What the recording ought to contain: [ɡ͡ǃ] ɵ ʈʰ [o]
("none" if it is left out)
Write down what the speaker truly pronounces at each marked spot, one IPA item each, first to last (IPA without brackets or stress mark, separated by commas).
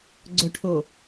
ɡ͡ǀ, o